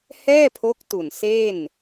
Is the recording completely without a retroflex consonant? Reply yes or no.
yes